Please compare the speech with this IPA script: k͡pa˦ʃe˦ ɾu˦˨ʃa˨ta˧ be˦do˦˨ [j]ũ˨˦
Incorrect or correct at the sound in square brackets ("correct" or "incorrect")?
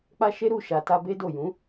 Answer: correct